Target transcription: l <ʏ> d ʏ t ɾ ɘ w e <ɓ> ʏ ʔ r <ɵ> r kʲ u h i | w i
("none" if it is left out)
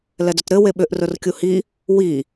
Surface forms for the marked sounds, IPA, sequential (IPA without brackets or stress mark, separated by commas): ɛ, ɓ, ɵ